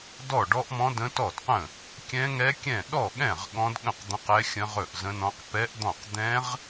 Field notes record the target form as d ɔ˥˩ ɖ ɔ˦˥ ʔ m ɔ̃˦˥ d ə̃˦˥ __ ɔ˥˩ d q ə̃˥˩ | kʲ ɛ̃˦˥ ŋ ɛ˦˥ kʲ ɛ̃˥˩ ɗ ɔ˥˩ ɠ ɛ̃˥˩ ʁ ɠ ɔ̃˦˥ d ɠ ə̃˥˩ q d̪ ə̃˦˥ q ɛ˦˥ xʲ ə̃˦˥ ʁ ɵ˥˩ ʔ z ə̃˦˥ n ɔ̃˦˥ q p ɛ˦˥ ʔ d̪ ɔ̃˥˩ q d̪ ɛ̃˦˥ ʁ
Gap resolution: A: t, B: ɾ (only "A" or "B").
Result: A